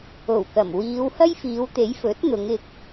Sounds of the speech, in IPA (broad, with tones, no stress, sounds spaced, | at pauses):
o˨˩ w k ɐ˨˩ m w iː˨˧ w h ɐ˥ j f iː˨˧ w t̪ e˨˥ j f ɵ˨˥ t̚ n̪ ʊ˨˧ ŋ ɪ˧ k̚